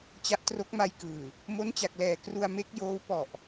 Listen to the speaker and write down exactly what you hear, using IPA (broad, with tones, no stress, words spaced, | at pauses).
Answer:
t͡ɕa˦˥ʔtro˦˥k̚ma˧jkɯː˨˩ | mo˦˥nt͡ɕa˨˩k̚lɛː˨˩ kru˧a̯ me˦˥k̚joː˦˥w pɔ˨˩ʔ